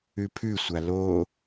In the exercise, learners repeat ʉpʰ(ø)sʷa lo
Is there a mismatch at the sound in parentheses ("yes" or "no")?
yes